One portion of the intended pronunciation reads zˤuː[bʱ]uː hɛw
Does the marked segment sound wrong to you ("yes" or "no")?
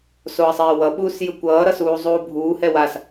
no